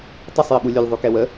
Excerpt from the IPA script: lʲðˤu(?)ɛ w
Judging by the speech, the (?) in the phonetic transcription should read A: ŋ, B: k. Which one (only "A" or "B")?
B